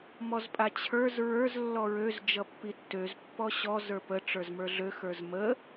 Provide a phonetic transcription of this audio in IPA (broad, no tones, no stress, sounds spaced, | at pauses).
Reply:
m ɔ z pʼ a t͡ɕʰ ə˞ z ɹ ə˞ z lː ɔ ɹ ø z d͡ʒ ʌ pː i tː ø z pː ɔ ɕ ɔ z ə˞ p ə ʈ͡ʂ ə˞ z m ə˞ ɮ ø x ə˞ z m ə